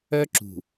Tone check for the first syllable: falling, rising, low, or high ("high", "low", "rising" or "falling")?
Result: high